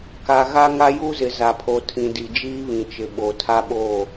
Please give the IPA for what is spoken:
ka˨ɣa˦ ŋa˦ju˦zɪ˨ za˨pʰo˨tʰĩ˨di˨ d͡ʒiː˦βĩ˨t͡ʃɪ˨ ɓo˨ tʰa˦ɓoː˦˨

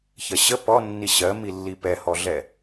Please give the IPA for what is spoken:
çɜɕə pɔnːi ɕɜmilːi pɛhɔɮɛ

